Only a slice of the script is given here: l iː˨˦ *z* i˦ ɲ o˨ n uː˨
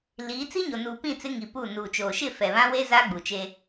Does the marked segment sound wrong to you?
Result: yes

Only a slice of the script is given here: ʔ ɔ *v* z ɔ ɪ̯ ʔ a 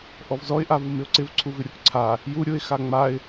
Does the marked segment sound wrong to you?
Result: no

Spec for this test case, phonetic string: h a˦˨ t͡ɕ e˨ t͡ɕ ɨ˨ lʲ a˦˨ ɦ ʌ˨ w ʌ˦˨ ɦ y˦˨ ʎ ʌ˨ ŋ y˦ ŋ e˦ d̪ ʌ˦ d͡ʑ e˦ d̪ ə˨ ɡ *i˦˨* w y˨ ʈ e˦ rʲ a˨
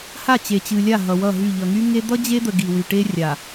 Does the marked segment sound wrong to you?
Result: yes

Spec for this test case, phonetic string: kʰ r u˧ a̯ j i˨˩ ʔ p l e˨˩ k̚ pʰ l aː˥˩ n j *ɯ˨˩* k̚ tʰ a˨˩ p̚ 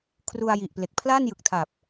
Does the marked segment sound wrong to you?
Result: no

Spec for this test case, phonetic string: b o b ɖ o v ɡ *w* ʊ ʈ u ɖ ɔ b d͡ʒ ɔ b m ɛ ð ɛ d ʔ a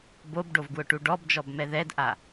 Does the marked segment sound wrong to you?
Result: no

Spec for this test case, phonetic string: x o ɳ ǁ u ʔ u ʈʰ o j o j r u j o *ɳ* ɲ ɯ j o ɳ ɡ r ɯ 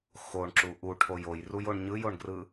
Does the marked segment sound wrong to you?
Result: no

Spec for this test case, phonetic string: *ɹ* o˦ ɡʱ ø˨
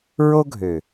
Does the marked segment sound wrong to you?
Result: no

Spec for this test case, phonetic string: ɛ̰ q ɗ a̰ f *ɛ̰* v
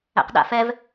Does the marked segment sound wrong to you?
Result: yes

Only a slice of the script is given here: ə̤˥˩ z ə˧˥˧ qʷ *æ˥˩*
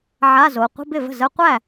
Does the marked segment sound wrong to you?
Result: no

